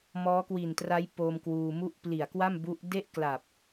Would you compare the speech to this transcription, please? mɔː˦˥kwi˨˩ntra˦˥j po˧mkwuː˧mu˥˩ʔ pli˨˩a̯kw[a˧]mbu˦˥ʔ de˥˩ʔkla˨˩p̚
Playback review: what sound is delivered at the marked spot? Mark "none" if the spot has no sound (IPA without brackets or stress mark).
a˥˩